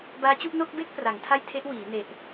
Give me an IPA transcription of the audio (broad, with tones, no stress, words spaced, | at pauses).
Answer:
baː˦˥t͡ɕu˥˩ʔ no˥˩k̚be˥˩k̚ pra˩˦ŋtʰa˥˩jtʰe˦˥ʔ wiː˩˦ ne˨˩ʔ